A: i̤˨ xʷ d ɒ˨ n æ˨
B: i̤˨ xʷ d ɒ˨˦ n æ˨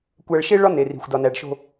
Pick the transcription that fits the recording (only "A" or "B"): A